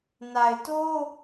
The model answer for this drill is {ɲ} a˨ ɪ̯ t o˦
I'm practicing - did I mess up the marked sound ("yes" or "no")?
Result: yes